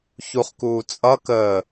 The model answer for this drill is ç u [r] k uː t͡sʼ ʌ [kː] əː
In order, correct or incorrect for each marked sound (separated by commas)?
incorrect, incorrect